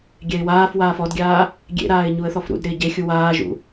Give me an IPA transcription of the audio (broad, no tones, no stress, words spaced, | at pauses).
ɡʲɛɪ̯waːfwaːf ɔdɡʲaː | ɡʲḛɾaːɪ̯ ɲuə̯θɔfɾṵdɾɪː ɟe xʲuwaːʒṵ